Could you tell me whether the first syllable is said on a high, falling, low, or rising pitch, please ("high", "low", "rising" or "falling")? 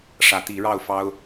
rising